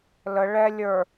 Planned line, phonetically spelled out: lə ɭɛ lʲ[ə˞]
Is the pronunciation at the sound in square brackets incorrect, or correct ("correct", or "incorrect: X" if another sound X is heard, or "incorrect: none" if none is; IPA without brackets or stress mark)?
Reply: correct